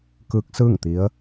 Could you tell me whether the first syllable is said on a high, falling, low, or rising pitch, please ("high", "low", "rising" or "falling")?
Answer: rising